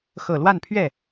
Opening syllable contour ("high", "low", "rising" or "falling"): low